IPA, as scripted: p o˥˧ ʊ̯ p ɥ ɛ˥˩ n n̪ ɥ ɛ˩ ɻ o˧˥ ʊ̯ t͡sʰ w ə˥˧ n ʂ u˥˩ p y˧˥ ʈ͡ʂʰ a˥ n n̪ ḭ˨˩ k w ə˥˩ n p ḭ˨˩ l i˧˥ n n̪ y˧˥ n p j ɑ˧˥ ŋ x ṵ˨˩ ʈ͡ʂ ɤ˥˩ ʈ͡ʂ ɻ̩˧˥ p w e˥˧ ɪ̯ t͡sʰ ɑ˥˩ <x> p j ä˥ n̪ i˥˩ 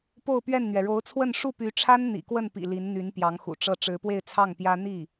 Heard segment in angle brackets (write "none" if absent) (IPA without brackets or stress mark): ŋ